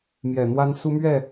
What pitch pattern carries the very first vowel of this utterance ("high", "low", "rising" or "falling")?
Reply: low